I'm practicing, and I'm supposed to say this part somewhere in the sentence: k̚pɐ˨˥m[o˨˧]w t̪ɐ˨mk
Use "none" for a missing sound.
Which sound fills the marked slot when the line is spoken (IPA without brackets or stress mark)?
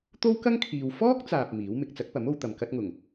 o˨˧